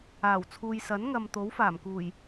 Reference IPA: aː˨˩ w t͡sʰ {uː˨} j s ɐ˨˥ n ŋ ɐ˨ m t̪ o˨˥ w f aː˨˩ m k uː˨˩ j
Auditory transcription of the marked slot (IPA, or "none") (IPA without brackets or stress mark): uː˨